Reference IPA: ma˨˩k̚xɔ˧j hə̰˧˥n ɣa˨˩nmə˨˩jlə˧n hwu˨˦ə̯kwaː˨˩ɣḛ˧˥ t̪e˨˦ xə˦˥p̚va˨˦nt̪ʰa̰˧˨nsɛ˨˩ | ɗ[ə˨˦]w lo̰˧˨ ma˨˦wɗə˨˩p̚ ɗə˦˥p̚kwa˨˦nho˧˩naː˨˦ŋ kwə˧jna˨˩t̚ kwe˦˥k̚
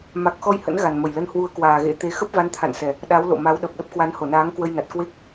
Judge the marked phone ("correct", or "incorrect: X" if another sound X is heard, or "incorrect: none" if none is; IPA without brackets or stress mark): incorrect: a˨˦